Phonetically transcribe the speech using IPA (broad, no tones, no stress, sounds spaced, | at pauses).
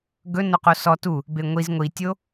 ɡ ɵ n o q o s ɔ t u | b e ŋʷ i z ŋʷ i tʲ o